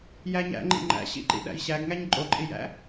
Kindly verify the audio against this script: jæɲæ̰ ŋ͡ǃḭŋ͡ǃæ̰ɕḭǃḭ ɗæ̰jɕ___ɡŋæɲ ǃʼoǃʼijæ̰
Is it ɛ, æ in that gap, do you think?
æ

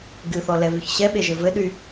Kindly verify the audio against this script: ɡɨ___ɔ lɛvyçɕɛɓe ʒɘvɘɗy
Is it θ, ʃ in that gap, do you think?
θ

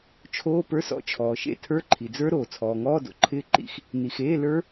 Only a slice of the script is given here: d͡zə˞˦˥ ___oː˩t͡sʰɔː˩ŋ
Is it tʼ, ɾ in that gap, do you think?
ɾ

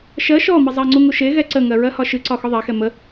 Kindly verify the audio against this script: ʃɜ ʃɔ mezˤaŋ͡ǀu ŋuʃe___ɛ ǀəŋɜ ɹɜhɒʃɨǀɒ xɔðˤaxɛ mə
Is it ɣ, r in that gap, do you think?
ɣ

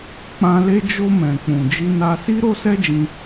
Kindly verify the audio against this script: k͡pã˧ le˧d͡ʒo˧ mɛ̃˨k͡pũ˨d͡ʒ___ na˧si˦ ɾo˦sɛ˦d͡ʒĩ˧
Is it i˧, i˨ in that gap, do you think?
i˧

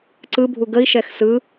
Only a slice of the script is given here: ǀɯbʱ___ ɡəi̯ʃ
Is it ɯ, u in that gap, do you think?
u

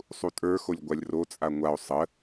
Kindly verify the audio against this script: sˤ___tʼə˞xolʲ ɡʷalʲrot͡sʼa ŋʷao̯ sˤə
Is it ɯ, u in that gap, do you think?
u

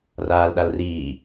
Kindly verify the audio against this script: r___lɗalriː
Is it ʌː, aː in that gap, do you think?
aː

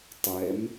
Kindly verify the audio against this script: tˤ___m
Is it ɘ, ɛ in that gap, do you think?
ɛ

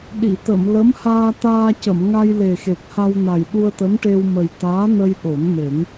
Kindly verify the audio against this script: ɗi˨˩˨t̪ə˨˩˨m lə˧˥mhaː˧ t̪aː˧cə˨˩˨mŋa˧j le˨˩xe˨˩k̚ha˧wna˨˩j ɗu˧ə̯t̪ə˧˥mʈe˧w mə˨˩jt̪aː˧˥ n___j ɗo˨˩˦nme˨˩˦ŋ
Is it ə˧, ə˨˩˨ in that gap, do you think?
ə˧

